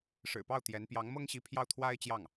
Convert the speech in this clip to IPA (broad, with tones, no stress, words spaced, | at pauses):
ʂɻ̩˨˩pɑ˥˩ʊ̯ t̪jɛ˧˥n pjɑ˧˥ŋmɤ˥ŋɕi˧˥ pʰjɑ˥˩ʊ̯t̪ʰwa˥ɪ̯t͡ɕjɑ˥˩ŋ